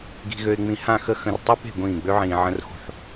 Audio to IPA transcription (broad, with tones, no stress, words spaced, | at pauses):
ɡi̤˨ɣø˨ɪ̯ŋ͡mĩ˨ hã˦˨xə˦ xə̃˨r tˤu˦pe̤˦˨ ɡʷĩː˦˨ ɡ͡bø˦ʕĩː˨ ʕə̃˦r xṳ˦˨ħ